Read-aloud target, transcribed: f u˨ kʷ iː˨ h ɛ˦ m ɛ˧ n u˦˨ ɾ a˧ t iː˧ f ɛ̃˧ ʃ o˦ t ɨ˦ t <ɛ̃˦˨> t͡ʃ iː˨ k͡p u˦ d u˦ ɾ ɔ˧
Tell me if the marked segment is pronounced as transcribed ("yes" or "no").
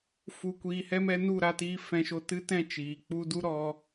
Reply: yes